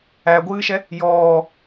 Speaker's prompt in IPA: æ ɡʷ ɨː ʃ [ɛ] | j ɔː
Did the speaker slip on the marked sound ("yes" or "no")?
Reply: no